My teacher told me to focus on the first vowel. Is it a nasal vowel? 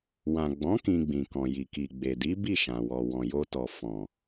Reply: yes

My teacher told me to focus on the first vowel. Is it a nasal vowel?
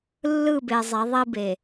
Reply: no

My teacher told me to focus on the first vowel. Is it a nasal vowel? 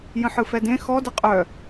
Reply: yes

